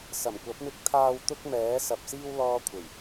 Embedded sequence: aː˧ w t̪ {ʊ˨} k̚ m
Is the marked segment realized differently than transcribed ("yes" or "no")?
yes